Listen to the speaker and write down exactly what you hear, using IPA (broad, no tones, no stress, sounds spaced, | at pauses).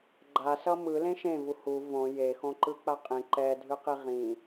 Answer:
ɡ͡ǃ a s ʌ m ɯ l ẽ ʃ ẽ v u h u v õ j e x õ ǃ ɯ k͡p a qʼ ĩ ǃ ɛ dʱ ɯ q i ʁ ĩ